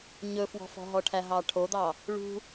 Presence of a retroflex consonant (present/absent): present